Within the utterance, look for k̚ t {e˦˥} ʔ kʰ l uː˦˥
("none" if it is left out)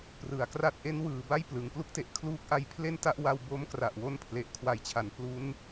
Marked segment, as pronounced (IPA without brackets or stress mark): e˨˩